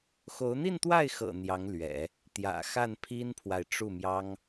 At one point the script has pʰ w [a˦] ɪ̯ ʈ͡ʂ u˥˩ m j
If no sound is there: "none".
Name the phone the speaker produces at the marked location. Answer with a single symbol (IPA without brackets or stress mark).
a˨